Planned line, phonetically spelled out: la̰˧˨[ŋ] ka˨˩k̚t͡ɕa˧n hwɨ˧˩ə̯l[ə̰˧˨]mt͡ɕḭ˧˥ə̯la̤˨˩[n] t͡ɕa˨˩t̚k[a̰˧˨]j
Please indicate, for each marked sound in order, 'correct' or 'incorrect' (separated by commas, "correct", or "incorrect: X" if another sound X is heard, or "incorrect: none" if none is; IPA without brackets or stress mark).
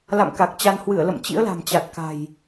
incorrect: m, correct, incorrect: m, incorrect: a̤˨˩